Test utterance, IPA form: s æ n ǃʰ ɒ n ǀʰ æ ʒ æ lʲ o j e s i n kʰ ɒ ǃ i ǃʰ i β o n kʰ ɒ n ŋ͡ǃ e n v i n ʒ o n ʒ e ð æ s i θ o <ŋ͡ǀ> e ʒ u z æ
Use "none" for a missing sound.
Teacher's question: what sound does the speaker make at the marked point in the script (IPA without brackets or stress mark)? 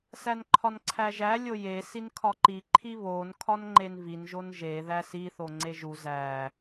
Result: ŋ͡ǀ